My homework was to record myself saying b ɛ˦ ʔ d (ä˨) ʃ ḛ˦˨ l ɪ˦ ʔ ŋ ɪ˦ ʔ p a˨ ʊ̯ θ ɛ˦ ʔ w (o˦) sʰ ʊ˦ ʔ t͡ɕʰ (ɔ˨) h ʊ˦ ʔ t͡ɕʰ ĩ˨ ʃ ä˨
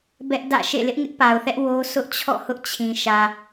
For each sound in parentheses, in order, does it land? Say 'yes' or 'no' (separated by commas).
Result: no, yes, no